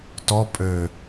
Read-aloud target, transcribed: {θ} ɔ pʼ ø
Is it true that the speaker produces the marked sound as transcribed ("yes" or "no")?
no